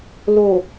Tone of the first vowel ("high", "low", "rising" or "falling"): low